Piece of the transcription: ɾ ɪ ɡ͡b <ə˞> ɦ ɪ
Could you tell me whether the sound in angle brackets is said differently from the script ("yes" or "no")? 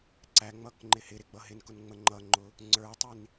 yes